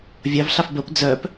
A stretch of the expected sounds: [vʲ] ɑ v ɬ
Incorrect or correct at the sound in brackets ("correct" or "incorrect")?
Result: correct